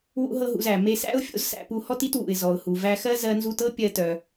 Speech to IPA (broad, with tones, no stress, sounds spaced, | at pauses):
w ṵ˥ ɦ ɤ˥ ɦ ṵ˧ z æ˩ m e˧ s æ̰˥ ʊ̯ fʲ o̰˥ z s æ̰˧ p u˧ h ɔ˥ t i˥ t w ṵ˩ ɪ̯ z ɔ˩ ʊ̯ h u˩ v æ˧ x ɜ˥ z ɜ˧ n z u˧ t ɤ˥ pʲ ɜ˧ t œ˩